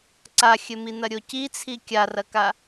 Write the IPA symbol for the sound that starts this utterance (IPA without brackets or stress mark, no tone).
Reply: ǀ